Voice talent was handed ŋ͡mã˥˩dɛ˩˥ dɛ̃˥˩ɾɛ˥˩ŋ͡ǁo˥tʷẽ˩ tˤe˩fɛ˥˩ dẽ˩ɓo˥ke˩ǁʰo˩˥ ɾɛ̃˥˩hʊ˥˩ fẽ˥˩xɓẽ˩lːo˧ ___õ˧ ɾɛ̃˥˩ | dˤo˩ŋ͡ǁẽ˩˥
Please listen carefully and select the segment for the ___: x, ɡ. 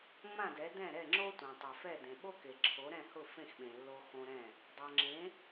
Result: x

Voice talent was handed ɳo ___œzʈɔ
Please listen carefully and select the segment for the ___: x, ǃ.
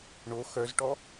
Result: x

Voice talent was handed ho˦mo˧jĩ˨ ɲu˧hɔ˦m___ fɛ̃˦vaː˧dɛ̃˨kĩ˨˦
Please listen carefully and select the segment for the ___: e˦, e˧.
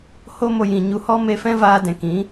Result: e˧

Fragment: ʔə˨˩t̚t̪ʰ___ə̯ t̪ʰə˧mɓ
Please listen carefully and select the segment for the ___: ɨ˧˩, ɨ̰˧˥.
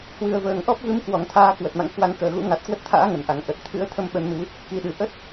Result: ɨ̰˧˥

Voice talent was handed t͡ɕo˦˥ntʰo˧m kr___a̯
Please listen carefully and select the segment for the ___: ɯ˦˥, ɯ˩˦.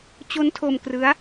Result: ɯ˦˥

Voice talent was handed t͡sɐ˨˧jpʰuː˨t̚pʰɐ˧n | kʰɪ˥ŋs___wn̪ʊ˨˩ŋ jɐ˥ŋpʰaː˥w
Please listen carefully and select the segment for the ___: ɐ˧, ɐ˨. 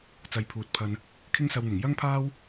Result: ɐ˧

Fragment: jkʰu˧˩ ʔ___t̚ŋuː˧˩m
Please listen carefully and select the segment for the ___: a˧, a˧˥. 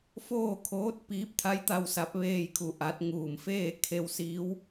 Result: a˧˥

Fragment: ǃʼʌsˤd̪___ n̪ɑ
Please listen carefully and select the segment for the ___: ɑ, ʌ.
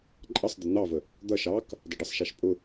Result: ʌ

